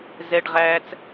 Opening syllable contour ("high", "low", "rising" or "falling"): high